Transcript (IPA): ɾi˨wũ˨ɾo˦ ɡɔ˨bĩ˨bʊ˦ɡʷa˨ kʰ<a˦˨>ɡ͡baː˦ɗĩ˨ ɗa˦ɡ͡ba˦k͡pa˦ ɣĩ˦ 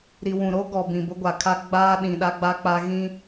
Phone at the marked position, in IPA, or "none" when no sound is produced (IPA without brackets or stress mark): a˦